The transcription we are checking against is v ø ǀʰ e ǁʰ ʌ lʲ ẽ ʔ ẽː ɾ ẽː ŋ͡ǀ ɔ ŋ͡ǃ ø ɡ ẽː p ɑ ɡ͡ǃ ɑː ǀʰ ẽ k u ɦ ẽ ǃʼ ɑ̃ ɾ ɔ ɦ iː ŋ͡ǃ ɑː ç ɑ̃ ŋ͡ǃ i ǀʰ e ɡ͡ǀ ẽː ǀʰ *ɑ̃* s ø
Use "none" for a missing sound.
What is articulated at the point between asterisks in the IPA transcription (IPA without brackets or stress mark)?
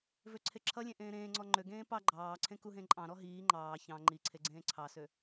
ɑ